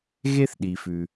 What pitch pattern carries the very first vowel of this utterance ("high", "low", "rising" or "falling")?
high